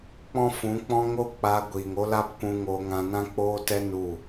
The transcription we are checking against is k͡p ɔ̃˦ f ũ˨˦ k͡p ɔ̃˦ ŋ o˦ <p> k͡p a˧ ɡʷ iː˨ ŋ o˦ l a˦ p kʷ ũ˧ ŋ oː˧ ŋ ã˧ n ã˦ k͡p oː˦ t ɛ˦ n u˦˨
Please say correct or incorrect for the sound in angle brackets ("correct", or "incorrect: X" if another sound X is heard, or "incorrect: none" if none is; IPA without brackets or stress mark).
incorrect: none